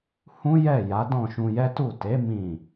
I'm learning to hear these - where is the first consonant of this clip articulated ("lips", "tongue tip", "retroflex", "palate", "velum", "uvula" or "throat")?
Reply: throat